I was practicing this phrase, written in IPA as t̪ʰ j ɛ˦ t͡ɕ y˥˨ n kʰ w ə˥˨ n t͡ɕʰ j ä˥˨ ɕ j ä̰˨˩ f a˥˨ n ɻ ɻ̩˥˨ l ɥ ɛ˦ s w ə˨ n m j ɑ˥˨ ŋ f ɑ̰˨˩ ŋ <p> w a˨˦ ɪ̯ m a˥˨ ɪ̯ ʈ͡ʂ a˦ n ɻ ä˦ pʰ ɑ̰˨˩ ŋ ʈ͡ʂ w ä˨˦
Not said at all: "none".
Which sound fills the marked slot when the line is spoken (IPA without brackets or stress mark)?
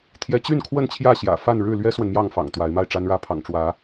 t̪